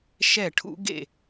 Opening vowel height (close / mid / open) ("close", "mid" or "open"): mid